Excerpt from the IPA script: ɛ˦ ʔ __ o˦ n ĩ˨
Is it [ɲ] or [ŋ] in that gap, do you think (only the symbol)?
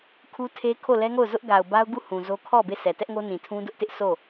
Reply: ŋ